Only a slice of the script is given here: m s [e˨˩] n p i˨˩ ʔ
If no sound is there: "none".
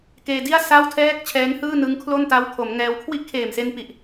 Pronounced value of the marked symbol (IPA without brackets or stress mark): e˧